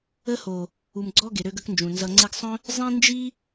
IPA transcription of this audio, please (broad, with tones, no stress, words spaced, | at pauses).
ə˦ho˨ | u˨mɡ͡ǀɔ˦ ɡe˨ɾø˦ɡə˦knd͡ʒũ˨ nzʌ˨ŋ͡ǀe˧ɡsˤœ̃˦ | zˤĩ˦ nd͡ʒi˦